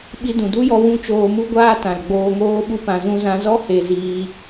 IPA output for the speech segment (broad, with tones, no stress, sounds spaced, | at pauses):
ɓ i˧ d ũ˨ d u˦ j ɔ˧ w ũ˦ t͡ʃ oː˧ m u˦ ɡʷ aː˦ t ã˨ l ɡ͡b oː˧ ŋ oː˦ ɓ u˦ p ã˧ z ũ˦ z ã˧ z ɔ˦ h e˧ z iː˧